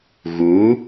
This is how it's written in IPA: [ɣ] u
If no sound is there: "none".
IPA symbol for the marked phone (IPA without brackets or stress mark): ɣ